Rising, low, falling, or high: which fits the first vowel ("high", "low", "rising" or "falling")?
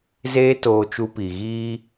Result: high